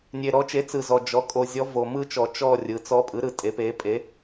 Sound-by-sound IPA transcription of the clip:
nʲe˨ɾɔ˩˥t͡ʃe˩˥ t͡sɯ˨zɔ˨ d͡ʒɔ˩˥kʼo˨ zʲɔ˧˥vo˨ mɯ˥˧t͡ʃɔ˨ t͡ʃɔ˥˧rʲɯ˩˥ t͡sɔ˧˥pʼɯ˩˥ɾɯ˨ tʼe˩˥pe˩˥pʼe˩˥

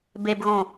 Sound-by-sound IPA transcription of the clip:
bebɣõ

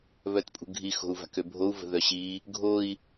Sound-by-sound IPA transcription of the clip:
βœtpʼṳɡʱi xo̤u̯va̤købʱou̯ və̤ðœɕi | ɡʱoi̯

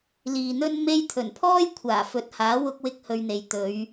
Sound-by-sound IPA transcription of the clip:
liː˨n̪ɵ˥n me˥j t̪ʰɵ˨˩npʰɔː˥j kʷʰaː˨˩fɵ˨˥t̚haː˨˥ wʊ˥k̚wɪ˥k̚hɵ˧ɥn̪e˨j t̪ɵ˨˧ɥ

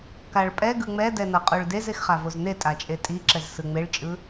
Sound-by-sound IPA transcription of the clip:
kaɭpʼɛ ɡɯŋ͡mɛdɛnʌ qʼoɭdez exχavozne tʼat͡ʃʼetʼiǁɛz sɯŋ͡meɭt͡ʃʼɯ

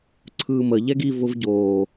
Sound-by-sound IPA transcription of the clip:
ǀʰɯːmə ʎɛɡi vʊvɟoː

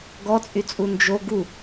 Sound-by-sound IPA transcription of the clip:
ɡɔt͡sʼyt͡sʼu nd͡ʒo ɡu

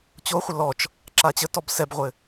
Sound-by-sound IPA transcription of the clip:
t͡ɕoχʷə lɔt͡ʃ | ǁat͡ɕətɔb sɛbʁʷɘ

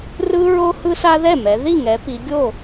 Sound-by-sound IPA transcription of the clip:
rɯ˦ɹo˦ hɯ˦sa˦ðɛ˥˩mɛ˩˧ ði˥˩ŋɛ˩˧pi˩˧ɡʲo˥˩

